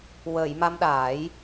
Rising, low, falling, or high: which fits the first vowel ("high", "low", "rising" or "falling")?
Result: low